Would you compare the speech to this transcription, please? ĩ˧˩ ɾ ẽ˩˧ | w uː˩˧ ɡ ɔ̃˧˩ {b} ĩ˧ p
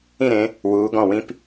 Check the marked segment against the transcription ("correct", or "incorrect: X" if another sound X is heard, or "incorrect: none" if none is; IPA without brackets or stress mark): incorrect: w